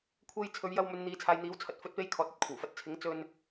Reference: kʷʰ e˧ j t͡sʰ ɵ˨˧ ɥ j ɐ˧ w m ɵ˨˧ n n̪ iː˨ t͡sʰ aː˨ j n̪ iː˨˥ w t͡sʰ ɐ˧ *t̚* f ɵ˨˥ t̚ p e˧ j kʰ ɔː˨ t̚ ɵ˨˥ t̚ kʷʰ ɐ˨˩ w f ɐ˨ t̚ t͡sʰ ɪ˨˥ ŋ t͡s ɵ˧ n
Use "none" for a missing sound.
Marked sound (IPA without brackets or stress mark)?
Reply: t̚